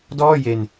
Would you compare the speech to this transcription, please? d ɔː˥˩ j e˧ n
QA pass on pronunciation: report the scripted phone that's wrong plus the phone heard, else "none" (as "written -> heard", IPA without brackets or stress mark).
none